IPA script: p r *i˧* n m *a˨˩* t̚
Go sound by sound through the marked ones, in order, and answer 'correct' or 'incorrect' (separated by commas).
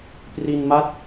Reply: correct, incorrect